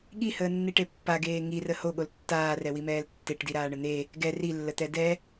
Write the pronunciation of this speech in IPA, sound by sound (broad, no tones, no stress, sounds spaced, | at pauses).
ɠ i h əː nː i ʈ e pː a ɡ eː ŋ i r ə h o ɠ o l tː aː r ɛ w i m ɛː l tː e ʈ d i ɾ aː ɳ ə n̪ e | ɡ ɛ r i lː ə t̪ ɛ d ɛ